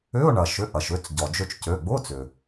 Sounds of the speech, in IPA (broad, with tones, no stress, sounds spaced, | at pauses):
ʏ˧˥˧ ʊ̯ ɳ ɐ˩ ʃ ʏ˩˧˩ ʔ ɐ˩ ʃ ʏ˩˧˩ t͡s ɟ ɔ˩ d͡ʒ ø˧ t͡ʃ c ø˩˧˩ ɡ͡b ʊ˧˥˧ t͡s ʏ˩